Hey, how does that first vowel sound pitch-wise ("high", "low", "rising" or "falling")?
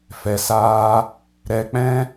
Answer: low